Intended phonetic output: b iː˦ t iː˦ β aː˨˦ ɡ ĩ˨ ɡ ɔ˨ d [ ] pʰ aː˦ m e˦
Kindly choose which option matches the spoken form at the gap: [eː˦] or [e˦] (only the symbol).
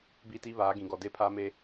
e˦